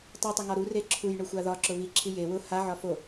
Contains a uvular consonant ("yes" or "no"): no